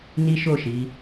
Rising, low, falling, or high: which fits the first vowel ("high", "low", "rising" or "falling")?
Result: high